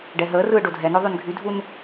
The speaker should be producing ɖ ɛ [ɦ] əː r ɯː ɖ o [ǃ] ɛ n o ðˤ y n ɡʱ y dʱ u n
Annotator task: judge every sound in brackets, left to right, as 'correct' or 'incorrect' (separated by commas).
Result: correct, incorrect